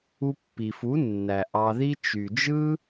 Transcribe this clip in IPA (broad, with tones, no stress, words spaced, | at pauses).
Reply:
u˧pːi˨fu˨˦ nːæ˨ ʔɑ˧ði˦ t͡ʃy˨d͡ʒɯ˦